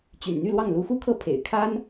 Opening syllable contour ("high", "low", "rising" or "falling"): low